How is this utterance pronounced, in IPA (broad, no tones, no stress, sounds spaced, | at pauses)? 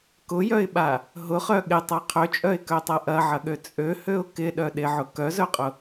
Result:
k ʊ j œ ɪ̯ ɓ a | ɦ ʊ χ œ ɠ ɪ tˤ a qʰ ø t͡ʃʼ œ ɪ̯ k œ tˤ a ʔ ɐ ʕ ɐ ɠ ø t͡sʼ ø h ø ʊ̯ k ɪ ɗ œ ɗ ɪ ʕ ʊ k œ z œ qʼ ʊ